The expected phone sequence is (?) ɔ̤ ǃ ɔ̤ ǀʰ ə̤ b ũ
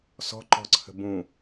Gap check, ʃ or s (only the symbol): s